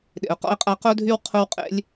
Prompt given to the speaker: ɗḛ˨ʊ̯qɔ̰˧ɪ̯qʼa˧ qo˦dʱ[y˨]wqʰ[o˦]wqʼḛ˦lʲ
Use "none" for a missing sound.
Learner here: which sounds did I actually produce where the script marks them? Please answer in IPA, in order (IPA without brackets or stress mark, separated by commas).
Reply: y˦, o˦